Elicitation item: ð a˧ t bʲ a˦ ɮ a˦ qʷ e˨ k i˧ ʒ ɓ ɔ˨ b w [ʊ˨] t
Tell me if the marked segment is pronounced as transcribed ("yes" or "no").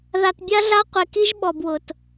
yes